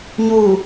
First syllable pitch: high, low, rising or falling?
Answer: low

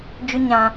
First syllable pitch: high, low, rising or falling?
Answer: high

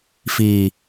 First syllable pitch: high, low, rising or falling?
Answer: low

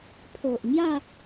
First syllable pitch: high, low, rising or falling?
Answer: low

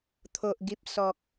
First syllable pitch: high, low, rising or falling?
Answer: low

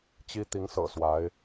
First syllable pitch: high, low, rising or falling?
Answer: high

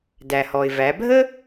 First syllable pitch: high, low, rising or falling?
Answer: low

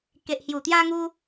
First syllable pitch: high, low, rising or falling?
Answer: low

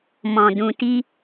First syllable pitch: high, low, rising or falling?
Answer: low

